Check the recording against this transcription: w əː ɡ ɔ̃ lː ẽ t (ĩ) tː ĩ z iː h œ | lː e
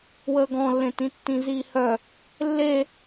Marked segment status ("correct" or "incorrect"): correct